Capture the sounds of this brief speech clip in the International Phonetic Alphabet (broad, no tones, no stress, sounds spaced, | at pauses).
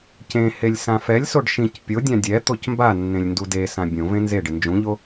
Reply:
c ẽ h e lʲ s ã f ɛ lʲ s o ɖ ʃ ĩ c pʲ o dʲ ã dʲ ɛ t̪ o c m b a nː ẽ lʲ n d u d e s ã bʲ õ v ẽ n z e ɖ ɪ n d͡ʒ ũ ʎ o